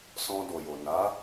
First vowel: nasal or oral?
nasal